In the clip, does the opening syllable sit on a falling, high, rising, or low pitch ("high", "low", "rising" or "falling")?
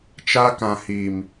high